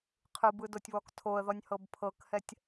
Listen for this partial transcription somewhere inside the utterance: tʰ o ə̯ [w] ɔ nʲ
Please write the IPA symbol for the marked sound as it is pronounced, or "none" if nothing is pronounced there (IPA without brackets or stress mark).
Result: ð